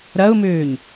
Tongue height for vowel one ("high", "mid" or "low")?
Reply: low